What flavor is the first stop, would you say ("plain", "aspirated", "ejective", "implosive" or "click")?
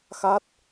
plain